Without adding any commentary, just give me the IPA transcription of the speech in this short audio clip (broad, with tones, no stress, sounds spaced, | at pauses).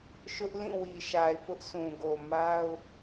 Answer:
ʃ ʊ˦ ʔ l ĩ˦˨ w i˨ ʃ a˨ ɪ̯ p ʊ˦ ʔ sʰ ũ˨ ɡ o˨ m a˦ ʊ̯